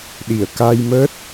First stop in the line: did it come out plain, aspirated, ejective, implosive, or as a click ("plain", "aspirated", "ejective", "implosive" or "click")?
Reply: implosive